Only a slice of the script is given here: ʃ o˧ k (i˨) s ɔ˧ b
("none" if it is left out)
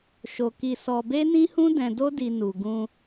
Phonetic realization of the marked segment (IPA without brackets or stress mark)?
i˧